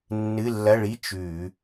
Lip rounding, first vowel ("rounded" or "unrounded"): unrounded